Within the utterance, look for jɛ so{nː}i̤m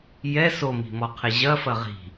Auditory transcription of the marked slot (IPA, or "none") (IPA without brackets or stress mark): m